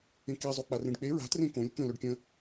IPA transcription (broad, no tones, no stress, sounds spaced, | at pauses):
ẽ k i zˤ o k͡p a r ẽ ɖ k͡p e ɹ a̤ t r ẽ k õ lʲ k ə̃ l ø ɖ kʲ ə̃